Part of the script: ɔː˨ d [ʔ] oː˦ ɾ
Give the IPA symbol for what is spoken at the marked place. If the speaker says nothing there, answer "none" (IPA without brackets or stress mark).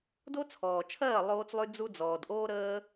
ʔ